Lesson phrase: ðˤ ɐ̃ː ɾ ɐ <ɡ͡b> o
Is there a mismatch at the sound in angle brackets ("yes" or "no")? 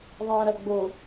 no